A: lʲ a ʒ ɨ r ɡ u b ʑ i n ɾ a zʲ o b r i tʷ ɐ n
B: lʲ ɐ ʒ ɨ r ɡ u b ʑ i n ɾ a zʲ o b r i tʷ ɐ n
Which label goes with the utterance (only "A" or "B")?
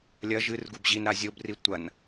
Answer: B